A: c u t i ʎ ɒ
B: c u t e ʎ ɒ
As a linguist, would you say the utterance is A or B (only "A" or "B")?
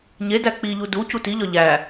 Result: A